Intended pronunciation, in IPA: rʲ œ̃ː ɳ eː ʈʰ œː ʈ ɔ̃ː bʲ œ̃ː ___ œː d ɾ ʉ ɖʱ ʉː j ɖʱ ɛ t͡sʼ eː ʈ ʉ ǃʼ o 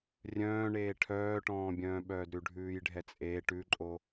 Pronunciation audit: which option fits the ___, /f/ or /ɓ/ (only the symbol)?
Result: ɓ